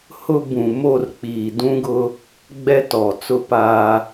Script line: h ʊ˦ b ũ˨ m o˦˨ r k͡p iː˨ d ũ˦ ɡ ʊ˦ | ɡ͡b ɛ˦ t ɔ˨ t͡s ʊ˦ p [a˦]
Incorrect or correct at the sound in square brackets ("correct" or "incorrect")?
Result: correct